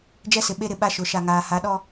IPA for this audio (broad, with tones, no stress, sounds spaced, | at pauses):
d͡ʒ ɛ˦ s ɪ˨ ɓ e˦ ɾ ɪ˨ ɓ a˦ ʃ ʊ˨˦ ʃ a˨ ŋ aː˨ h a˨˦ ɗ ɔ˦